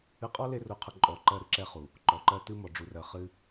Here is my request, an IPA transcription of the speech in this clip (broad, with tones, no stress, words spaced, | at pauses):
ɨ˧qʼɔ˦ le˦rʊ˧qʰʊ˧ ǃʼɔ˨˦ǃɜ˧ ɾʊ˦ǁɛ˧χu˨ | ǃɔ˨ǃɜ˧ tɨ˦mɔ˧ɖ͡ʐu˧rɜ˧ χɨ˧